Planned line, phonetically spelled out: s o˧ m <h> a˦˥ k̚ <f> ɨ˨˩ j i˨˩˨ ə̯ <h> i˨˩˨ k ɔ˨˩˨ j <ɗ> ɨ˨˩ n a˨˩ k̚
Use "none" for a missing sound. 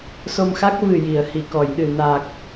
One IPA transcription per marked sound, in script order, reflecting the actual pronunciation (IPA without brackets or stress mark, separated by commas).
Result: x, v, h, ɗ